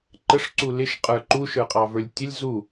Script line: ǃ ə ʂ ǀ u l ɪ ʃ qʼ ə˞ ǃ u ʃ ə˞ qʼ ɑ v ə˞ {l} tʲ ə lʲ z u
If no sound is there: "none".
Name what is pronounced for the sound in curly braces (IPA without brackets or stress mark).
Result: lʲ